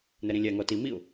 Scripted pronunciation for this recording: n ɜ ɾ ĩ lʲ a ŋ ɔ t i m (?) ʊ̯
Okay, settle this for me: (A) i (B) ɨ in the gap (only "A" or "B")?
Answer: A